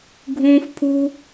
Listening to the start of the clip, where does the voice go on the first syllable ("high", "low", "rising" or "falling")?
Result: high